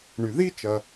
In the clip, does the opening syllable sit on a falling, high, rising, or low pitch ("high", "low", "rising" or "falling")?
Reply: low